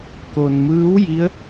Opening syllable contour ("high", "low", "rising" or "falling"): low